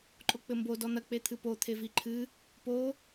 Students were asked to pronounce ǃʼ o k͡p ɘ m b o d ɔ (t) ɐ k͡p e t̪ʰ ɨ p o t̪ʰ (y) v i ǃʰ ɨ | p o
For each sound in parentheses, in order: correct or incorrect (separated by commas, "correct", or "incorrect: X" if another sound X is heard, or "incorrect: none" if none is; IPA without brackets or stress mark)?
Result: incorrect: n̪, incorrect: e